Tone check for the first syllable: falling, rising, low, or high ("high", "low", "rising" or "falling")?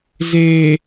low